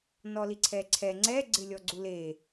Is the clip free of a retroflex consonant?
yes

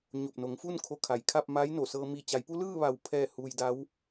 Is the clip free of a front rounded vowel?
yes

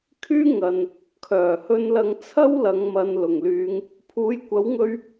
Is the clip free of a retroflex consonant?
yes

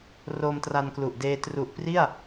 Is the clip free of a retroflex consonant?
yes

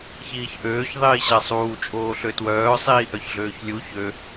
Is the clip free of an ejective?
no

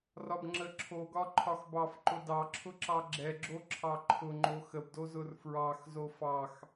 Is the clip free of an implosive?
yes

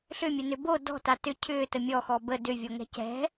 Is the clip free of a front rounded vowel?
no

